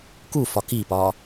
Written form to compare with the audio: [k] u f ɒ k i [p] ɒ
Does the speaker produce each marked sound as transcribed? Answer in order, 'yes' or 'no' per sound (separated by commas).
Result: yes, yes